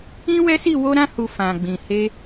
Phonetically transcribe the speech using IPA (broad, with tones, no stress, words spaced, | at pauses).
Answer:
ĩ˦wɛ˦si˦˨ wo˧ɾã˧hu˨ fã˨ɡ͡bĩ˨he˧